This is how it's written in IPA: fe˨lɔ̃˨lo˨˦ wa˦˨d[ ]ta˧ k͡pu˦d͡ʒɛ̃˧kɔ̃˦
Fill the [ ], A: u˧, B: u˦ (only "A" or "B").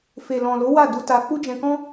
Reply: A